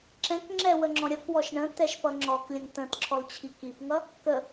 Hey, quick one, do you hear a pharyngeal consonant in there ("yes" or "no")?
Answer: no